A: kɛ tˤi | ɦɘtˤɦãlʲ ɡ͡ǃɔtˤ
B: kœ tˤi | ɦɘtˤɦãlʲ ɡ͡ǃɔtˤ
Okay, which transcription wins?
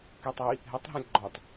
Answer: A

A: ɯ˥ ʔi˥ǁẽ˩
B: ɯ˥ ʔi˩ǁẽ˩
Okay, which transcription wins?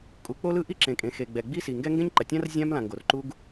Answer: A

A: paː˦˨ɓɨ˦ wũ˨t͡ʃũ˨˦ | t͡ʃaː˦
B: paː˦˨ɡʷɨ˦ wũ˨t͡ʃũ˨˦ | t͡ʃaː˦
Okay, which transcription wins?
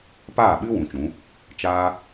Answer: A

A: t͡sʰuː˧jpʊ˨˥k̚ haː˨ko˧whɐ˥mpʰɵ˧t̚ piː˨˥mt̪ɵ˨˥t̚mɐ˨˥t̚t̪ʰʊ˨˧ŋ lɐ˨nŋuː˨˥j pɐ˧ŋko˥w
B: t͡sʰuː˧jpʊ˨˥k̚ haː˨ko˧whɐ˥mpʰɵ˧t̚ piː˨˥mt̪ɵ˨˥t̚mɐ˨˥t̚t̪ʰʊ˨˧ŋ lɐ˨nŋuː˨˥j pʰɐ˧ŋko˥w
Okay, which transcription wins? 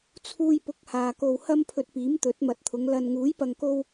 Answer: A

